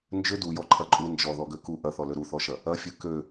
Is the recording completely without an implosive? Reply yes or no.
yes